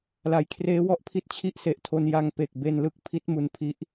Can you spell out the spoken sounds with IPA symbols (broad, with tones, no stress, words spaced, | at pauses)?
la˩˦jkʰreː˦˥wɔ˦˥ʔpʰi˦˥t̚ t͡ɕʰi˥˩ʔse˨˩ʔtʰo˧n ja˧ŋpe˨˩k̚ be˧nlɯ˥˩k̚ pʰi˦˥t̚mu˧n pʰi˦˥ʔ